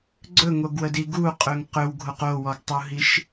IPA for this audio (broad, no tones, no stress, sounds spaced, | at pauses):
ɡ͡ǀ ɵ ŋ o ɡ w ə d i ɡ u qʼ ɵ ŋ q ɵ w ɡʱ o q o w ɔ ɡ tˤ u ɦ i ʃ